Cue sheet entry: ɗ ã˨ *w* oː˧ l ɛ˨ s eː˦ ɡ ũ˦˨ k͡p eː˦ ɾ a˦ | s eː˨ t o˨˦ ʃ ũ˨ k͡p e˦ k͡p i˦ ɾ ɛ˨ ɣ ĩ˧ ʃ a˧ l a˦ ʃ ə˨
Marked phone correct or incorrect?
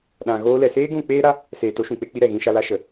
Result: incorrect